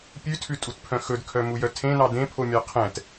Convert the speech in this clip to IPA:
pʲ ʉ tʰ ʉ tʼ u t pʰ œ̃ x ɵ d kʰ œ m u j œ tʰ ẽ n ɑ d ẽ pʰ o mʲ ɑ qʰ ɛ̃ t

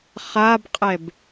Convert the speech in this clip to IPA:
χ a b qʼ ɛ b

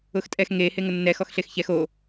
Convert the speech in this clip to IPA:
ʊ x tʼ ɛ x ŋ e h e ŋ ʊ nː ɛ x ɔ x ɬ e x ç ɛ x o

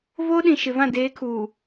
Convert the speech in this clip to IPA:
v oː˦ ɗ ĩ˨ ʃ ɪ˨ v ã˦˨ d eː˨˦ kʰ uː˨

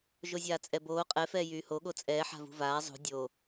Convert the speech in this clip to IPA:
ʒ o zʲ aː t͡sʼ ɛ b oː qʼ ɛ f ɛː j yː h o ɠ o t͡sʼ ɛː ħ a̤ v ṳ v aː zˤ ṳ dʲ oː

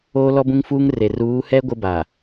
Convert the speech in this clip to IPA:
oː˦ l ɔ˦ b ũ˦ ŋ f uː˦ ŋ r e˨ r uː˨˦ h ɛ˦ ɡʷ ɪ˦ b a˨

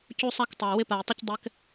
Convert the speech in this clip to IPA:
c u˦ sˤ a˦ k tˤ æ˨ w ɪ˦ p a˨ j tˤ ɪ˦ c dˤ ɛ˦ k

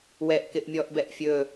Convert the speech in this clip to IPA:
w ɛ ʔ k ɪ ʔ mʲ ɔ ʔ b ɛ ʔ fʲ ɵ

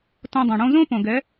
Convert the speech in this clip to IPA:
t õ˧ dˤ œ̃˨ ɽ õ˦ z õ˦ p õ˨ ɡ ɛ˨˦

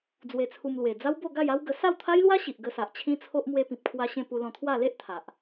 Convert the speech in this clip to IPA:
d͡z w e˧ t͡sʰ u˧ m l w e˨˩ d͡z a˦ w b o˥˧ ɡ a˥˧ j a˦ w ɡ ə˧ s a˥˧ w t̪ʰ a˦ j l w a˦ ɕ i˨ ʔ ɡ ə˧ s a˨ ʔ t͡ɕʰ ĩ˦ t͡sʰ o˦ ʔ m w e˧ p ĩ˨ p̚ kʰ w a˧ ɕ ẽ˧ p u˧ l ɔ̃˧ t̪ʰ w a˥˧ l e˦ ʔ t̪ʰ a˨ ʔ

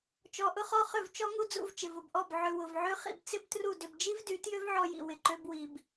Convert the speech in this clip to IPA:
t͡ʃ ɔ˧ ʔ ʊ˦ χ ɔ˦ χ ʏ˦˨ v t͡ʃ ɔ˦ ŋ u˦ d͡z ṵ˧ v t͡ʃ ɪ˨ v ʊ˨ b ʔ ɔ˦˨ b ʕ ʏ˨ w ʊ˨ v ʕ ø˦ χ ḭ˧ b t͡s ɪ˦ b t r u˦˨ d ʏ˧ b d͡ʒ i˦ v d y˨˦ t j ø˦ v ʕ ɔ˧ j ḭ˨ w ɪ˨ ǃ ø˦ b w i˧ b

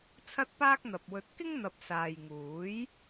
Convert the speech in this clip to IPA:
t͡sʰ ɐ˥ t̚ p aː˥ k̚ n̪ ɐ˨ p̚ w ɵ˧ t̚ k ɪ˥ ŋ n̪ ɐ˨ p̚ s aː˨ j ŋ uː˨˥ j

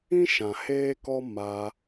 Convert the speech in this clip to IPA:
ĩ˦ ʃ ã˨ h eː˦ k ɔ˦ m a˧

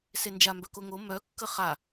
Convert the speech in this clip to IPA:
s e n d͡ʒ a m b œ k o ŋ o m œ kː ə χ a

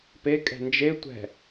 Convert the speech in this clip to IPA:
p e kʼ ɛ̤ n d͡ʒ e tʷ ɛ̤

